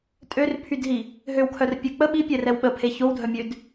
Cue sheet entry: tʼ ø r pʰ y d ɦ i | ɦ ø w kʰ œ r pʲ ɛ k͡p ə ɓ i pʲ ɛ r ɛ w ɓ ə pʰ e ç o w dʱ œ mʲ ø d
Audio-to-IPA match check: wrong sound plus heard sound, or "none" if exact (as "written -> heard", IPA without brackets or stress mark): none